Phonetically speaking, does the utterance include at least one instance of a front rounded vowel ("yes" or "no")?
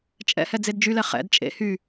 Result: yes